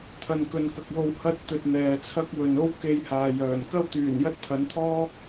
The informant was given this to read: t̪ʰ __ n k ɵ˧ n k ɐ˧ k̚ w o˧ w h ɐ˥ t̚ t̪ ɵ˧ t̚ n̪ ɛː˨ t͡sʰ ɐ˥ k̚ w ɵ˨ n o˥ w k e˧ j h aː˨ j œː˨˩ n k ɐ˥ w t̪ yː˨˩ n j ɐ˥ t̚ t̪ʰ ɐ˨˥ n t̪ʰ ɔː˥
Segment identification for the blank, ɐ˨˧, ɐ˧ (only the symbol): ɐ˧